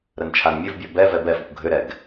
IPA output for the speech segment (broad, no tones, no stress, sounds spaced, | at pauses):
ɾ ə n t͡ʃʰ a n mʲ ɘ v bʲ ɔ b ɛ v ɛ b ɛ f ə kʷ ɡʱ ʏ ɾ ɛ ɡ